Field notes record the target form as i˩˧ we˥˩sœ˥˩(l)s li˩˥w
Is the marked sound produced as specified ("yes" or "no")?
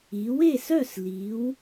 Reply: no